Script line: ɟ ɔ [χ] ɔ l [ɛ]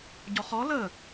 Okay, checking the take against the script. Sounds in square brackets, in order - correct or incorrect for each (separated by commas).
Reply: correct, incorrect